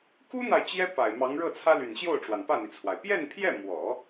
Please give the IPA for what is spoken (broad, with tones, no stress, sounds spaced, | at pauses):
k u˥ n̪ a˨ ɪ̯ t͡ɕ j ɛ˥ p a˨˩ ɪ̯ m ɑ˧˥ ŋ ɻ ɤ˥˩ t͡sʰ ä˥ l y˨˩ n ɕ j o˥˩ ʊ̯ ʈ͡ʂ w a˩ n p ä˥˩ n̪ i˩ t͡sʰ w a˩ ɪ̯ p j ɛ˥˧ n pʰ j ɛ˥˩ m w ɔ˨˩˦